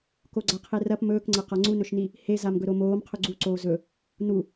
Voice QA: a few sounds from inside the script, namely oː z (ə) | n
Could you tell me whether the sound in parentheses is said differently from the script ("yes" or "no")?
yes